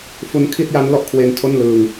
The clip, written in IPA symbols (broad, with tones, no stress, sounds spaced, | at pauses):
f u˧ n kʰ i˥˩ t̚ j a˦˥ n l ɔ˥˩ ʔ kʰ w e˧ n tʰ o˥˩ n l ɯ˧ ŋ